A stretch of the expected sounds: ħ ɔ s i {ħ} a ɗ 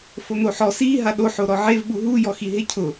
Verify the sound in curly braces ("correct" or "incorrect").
incorrect